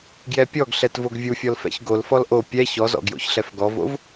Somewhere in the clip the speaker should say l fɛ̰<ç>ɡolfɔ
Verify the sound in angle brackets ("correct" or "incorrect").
correct